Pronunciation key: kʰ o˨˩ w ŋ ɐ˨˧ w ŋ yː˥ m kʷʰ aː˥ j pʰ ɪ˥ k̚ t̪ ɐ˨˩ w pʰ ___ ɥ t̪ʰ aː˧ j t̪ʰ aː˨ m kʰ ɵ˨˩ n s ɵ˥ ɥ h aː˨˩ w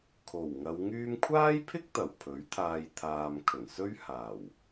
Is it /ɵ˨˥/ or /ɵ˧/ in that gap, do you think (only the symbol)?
ɵ˨˥